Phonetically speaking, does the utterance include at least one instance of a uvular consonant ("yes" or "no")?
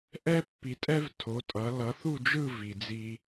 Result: no